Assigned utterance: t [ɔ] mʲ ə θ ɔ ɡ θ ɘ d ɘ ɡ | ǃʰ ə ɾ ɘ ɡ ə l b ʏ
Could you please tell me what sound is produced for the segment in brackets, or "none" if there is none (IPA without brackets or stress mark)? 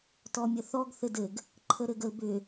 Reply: ɔ